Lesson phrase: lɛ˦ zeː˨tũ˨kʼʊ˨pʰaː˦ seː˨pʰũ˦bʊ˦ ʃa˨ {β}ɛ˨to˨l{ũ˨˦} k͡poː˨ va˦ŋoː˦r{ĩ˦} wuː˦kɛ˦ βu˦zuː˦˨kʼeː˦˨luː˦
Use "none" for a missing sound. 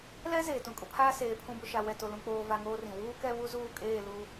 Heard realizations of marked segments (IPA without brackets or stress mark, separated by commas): w, ũ˨, ĩ˨